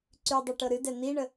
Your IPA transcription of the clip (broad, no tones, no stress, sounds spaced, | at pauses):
ǀ y dˤ ɤ ʈ ɤ ɾ ɨ d ɛ n̪ i ɳ ə